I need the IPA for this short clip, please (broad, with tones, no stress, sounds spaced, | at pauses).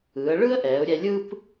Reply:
ɯː˩˧ ə̯ ɭ ɯ˥ ə̯ ʔ ɛː˩˧ ʊ̯ ɾʲ ɛ˧ lʲ ɯ˥ p